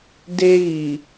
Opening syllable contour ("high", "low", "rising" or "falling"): high